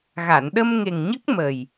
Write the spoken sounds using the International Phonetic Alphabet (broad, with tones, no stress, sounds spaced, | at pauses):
ɣ a˨˩˨ n ɗ ə˧ m ŋ e˨˩ ŋ ɲ ə˦˥ k̚ m ə˨˩ j